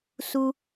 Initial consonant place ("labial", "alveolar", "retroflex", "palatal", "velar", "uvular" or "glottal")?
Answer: alveolar